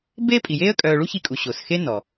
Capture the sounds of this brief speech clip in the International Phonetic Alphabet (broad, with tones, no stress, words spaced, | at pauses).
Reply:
beː˥pʼi˩jeː˥ə̯ kʼœː˧ ɭu˥çi˧kʼu˩ ɕo˩sxe˥nɔ˩